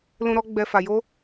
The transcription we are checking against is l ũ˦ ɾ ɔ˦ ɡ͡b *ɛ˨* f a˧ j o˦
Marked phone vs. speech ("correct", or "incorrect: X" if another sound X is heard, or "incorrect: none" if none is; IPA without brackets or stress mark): incorrect: ɛ˧